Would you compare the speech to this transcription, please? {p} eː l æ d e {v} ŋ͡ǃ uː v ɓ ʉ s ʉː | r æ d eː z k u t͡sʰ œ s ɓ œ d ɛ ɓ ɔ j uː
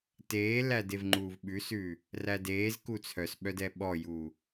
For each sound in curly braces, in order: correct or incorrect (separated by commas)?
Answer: incorrect, correct